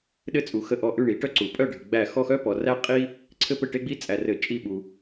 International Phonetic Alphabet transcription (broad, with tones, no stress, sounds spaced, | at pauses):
ɗ ɘ˦˨ t͡sʼ u˨ x ə˦˨ ʔ ɔ˦˨ ʔ ʉ˦˨ ɳ i˨˩˦ ʈ œ˦ ǀ u˨˩˦ pʼ œ˦˨ ɖʱ ɘ˨ ɡ͡b æ˦˨ x ɔ˦˨ x œ˦ p ɔ˨ r æ˦ qʼ i˦ | ǀʰ ɘ˦ p ɘ˦˨ ʈ e˦ ɡ͡b i˦ t͡sʼ æ˨ r ɘ˨˩˦ t͡ʃʼ i˦˨ ɓ u˨